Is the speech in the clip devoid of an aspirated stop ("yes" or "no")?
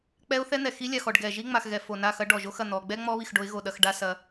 yes